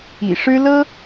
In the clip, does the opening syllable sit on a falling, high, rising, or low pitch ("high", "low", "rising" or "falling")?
low